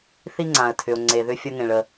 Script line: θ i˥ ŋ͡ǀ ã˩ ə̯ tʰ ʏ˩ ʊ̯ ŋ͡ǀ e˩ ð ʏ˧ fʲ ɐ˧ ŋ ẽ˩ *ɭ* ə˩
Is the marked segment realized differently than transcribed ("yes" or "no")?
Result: no